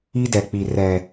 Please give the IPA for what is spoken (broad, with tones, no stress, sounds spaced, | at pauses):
i˦ d ɛ˨ k͡p i˨ r ɛ˨